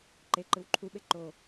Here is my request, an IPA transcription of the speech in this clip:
ǃ e ǃ ɯ w ǃʰ u ɓ e ǃ o

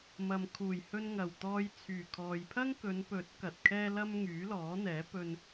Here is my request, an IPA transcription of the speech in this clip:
m ɐ˨ m kʰ uː˨˩ j h ɵ˧ n ŋ ɐ˨˩ w t̪ ɔː˧ j t͡sʰ yː˨˩ kʰ ɔː˨ j pʰ ɐ˥ ŋ k ɵ˨˧ n p ɵ˨˥ t̚ k ɐ˨ t̚ kʰ ɛː˥ l ɐ˥ m ŋ yː˨˥ l ɔː˨˥ n̪ ɛː˨˥ p ɵ˧ n

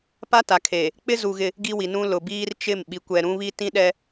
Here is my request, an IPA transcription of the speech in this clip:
p a˦ t a˨ kʰ eː˨ | k͡p ɪ˦ z u˨ ɣ ɪ˦ | ɡ i˦ w i˨ n ũ˦ l ʊ˨ b iː˦ r t͡ʃ ɪ˦˨ m ɓ i˨ kʷ ɛ˨ ɾ ũ˦ β i˦ t ĩ˦ ɗ ɛ˦

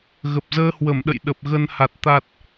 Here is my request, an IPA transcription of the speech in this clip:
ɣ ə˨˩ p̚ z əː˧ h w ə˧˩ m ɗ ə̰˧˨ j ɗ ə˨˩ p̚ ɣ ə˧ n h a˨˩ t̚ t̪ a˨˩ t̚

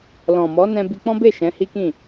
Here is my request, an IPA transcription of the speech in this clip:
l ɔ̃˨ m ɔ˨˦ n ɛ̃˧ b i˧ k͡p ɔ̃˦ b e˦˨ ʃ ɛ̃˨˦ h i˦ k ĩ˦˨

